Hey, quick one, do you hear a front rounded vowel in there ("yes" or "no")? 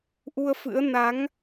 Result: no